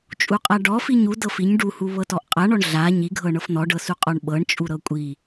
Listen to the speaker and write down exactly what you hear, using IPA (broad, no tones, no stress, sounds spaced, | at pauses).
t͡ʃʼ u qʼ a ɖ ɔ f i ɲ u d ɤ f i ɲ ɖ u h u β ɤ t ɔ ʔ qʼ a ɳ ɔ ɳ ɮ a ɲ i ɡʱ ɤ ɳ ɤ f n̪ ɔ ɖ ɤ s u qʼ ɔ ɳ ɓ ɤ ɳ t͡ʃʼ u ɾ ɤ kʷʼ i